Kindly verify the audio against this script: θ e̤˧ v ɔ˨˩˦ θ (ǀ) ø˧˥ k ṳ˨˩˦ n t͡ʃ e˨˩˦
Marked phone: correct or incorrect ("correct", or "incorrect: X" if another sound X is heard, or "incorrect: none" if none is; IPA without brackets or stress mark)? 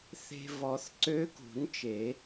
correct